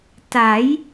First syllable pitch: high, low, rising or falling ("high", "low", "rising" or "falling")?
rising